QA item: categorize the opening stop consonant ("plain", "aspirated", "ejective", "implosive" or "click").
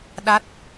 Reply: implosive